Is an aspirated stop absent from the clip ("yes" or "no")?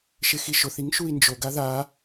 yes